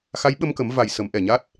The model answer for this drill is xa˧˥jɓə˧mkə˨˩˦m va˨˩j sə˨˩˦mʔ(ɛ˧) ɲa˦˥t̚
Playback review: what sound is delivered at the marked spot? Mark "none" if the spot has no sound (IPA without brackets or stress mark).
ɛ˨˩